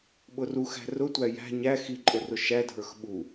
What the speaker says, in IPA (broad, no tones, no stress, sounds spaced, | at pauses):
ɓ ʊ r u x æ̤ r ʊ tʷ æ j æ̤ ɲ æ x i ǃʼ ʊ r ʊ ʃ æ dʱ ə˞ x ɓ u